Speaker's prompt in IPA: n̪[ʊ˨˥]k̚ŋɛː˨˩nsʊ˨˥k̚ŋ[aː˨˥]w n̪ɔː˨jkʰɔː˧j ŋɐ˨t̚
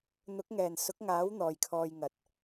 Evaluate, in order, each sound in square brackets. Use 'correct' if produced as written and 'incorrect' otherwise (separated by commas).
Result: correct, correct